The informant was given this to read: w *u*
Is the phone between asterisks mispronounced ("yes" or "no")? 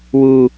no